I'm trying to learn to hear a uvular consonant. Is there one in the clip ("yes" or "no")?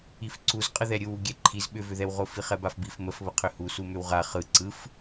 yes